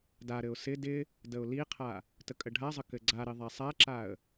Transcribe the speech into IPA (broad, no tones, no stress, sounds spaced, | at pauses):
d a ɾ ɘ ʊ̯ s ɪ d ɪ | d ə ʊ̯ l i qʰ a | t ə kʼ ə ɖʱ a zˤ ə k ɘ ɡ͡ǀ a ɾ ɪ ðˤ a sˤ a ǁ a ə̯